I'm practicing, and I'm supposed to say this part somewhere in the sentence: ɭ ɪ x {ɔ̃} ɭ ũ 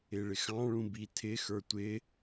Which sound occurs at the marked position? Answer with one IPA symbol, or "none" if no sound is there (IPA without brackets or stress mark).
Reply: ɑ̃